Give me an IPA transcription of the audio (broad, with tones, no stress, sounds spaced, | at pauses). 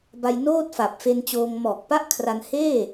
b a˧ j n oː˥˩ t̚ f a˨˩ p̚ f e˧ n t͡ɕ oː˧ ŋ m ɔː˨˩ k̚ p a˥˩ ʔ kʰ r a˧ n h eː˥˩